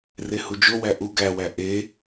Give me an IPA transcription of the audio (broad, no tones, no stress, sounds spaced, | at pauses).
r e h u d͡ʒ o w æ ʔ u ɡ æ w æ ʔ e